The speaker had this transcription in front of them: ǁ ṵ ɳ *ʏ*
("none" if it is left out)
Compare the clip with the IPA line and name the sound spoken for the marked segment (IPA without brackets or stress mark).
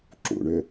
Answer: ʏ